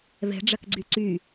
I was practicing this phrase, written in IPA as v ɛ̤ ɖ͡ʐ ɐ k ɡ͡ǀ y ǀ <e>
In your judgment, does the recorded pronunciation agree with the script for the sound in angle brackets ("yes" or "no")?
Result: no